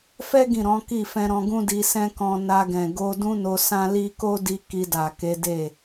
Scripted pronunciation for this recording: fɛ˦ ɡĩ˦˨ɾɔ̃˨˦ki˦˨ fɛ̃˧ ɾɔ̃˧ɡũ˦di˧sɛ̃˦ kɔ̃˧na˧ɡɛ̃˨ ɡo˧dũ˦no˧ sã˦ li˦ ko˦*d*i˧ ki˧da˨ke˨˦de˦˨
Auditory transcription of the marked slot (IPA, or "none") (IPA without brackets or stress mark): d